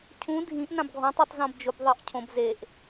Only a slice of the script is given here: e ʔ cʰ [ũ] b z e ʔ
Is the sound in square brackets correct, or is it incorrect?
incorrect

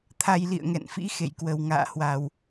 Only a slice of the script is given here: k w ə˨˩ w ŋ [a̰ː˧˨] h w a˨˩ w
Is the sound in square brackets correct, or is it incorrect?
correct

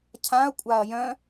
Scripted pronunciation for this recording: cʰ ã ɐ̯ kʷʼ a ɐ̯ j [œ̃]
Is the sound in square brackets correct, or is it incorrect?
correct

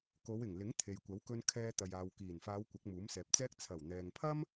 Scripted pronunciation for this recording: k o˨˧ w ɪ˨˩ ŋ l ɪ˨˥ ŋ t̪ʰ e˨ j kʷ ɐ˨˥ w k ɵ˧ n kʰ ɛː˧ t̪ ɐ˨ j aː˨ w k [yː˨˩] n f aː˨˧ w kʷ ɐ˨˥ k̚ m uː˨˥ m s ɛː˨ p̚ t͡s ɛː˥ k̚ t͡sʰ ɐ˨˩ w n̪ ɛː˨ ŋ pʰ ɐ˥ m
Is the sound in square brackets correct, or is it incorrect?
incorrect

